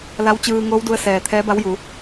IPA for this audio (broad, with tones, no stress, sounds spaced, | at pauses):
l a˧˥ w t͡ɕ ɯː˧ ŋ oː˧˥ w d u˧ ə̯ s ɛː˩ t̪ʰ ɛː˧˥ b a˧˥ w j u˩˧